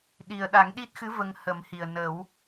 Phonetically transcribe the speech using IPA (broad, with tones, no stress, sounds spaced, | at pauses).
ɗ i˨˩ ə̯ ɗ a˨˩˦ ŋ ɗ i˦˥ t̚ x ɨ˧˥ v ə˧ ŋ h ə˨˩˦ m h i˨˩ ə̯ n ə˨˩˦ w